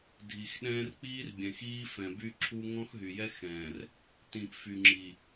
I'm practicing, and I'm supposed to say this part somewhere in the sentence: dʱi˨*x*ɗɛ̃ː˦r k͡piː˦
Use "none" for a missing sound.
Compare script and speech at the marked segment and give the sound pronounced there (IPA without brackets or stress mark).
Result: x